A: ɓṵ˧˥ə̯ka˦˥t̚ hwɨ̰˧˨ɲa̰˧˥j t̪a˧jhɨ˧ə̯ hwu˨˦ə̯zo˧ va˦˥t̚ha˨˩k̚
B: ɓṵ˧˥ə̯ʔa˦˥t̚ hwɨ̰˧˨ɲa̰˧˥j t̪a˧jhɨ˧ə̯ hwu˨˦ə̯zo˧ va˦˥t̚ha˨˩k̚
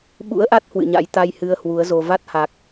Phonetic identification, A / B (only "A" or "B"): B